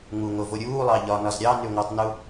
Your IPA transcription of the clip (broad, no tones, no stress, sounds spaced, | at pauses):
ŋ u ŋ o v o ɾʲ uː lˠ ɑ ʎ ɒ n ɒ z ɾʲ ɑ n y ŋʷ əː tˤ n u